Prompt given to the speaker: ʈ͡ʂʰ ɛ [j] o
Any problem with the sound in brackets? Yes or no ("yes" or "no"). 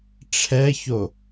yes